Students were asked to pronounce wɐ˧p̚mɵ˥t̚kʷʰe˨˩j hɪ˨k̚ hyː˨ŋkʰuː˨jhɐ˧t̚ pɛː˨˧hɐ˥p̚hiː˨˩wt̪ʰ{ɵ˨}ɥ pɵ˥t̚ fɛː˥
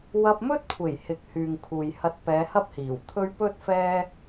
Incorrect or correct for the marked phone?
incorrect: ɵ˥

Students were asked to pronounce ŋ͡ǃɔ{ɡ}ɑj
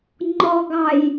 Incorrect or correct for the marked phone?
correct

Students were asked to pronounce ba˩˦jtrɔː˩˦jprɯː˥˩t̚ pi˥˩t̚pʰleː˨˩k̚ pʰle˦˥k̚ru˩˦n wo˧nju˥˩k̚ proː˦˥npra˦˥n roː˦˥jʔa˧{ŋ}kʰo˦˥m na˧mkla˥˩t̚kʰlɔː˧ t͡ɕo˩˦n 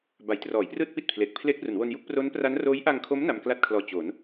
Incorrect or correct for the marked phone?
correct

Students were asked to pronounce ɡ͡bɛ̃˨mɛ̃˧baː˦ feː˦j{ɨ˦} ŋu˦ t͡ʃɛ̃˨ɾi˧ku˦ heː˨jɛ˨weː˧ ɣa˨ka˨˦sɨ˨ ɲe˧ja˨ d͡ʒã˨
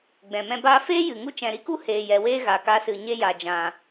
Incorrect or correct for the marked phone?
incorrect: ɨ˨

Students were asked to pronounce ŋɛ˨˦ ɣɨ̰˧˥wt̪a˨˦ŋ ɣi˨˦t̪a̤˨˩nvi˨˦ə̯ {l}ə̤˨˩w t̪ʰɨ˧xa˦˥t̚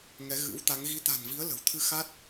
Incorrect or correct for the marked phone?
correct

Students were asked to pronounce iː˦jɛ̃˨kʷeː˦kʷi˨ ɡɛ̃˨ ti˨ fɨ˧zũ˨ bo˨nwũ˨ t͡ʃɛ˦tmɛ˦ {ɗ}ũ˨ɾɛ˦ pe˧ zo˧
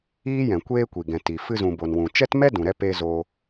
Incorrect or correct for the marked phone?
incorrect: d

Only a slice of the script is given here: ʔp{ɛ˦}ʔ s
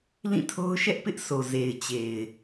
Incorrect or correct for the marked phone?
incorrect: ɪ˦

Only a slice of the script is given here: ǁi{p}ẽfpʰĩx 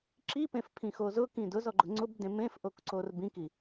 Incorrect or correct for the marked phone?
correct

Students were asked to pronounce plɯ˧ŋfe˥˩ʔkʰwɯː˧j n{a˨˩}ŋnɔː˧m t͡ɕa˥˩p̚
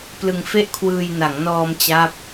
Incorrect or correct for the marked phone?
incorrect: a˩˦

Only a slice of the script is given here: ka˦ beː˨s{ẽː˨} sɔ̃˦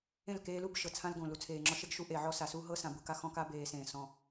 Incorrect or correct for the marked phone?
correct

